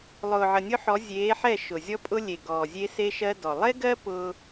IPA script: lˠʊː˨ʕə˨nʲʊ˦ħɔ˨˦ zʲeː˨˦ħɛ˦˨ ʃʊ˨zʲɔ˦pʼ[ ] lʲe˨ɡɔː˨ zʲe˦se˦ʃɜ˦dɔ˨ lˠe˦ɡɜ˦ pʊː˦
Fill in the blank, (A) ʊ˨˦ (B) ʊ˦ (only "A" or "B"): B